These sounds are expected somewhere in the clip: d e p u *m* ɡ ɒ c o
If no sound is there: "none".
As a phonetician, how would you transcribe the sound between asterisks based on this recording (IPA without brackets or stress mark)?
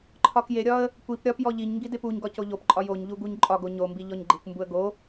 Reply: ɲ